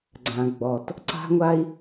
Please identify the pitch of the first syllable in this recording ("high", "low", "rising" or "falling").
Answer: low